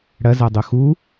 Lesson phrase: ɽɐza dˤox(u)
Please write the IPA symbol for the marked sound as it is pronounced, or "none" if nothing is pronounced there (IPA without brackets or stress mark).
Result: u